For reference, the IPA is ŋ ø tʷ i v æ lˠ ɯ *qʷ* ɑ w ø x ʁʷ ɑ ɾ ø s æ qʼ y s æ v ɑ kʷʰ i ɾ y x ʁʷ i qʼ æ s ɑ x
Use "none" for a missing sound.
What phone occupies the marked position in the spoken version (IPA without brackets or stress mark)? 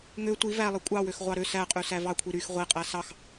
kʷʼ